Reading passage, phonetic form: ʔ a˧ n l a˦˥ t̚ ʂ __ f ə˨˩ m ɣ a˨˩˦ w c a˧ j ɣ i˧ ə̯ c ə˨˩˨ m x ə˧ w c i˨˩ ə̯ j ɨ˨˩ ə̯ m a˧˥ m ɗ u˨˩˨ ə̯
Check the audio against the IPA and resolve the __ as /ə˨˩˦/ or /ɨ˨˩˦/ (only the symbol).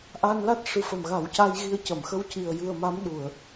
ɨ˨˩˦